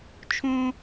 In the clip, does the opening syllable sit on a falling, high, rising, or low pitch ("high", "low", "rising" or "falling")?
high